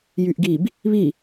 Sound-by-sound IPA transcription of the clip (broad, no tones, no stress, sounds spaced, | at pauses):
j y ʔ ɡ i b | β i